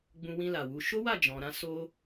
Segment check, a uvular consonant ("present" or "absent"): absent